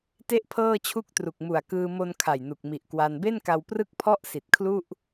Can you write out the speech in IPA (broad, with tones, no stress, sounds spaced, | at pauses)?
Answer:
t e˥˩ ʔ pʰ ɤː˥˩ t͡ɕʰ u˥˩ k̚ t r u˨˩ k̚ m u˨˩ a̯ k ɯː˧ m o˧ n kʰ a˨˩ j n u˨˩ k̚ m i˨˩ ʔ k w a˧ n b e˥˩ n k a˧ w p r ɯ˥˩ k̚ pʰ ɔ˥˩ ʔ s i˨˩ t̚ kʰ l u˥˩ ʔ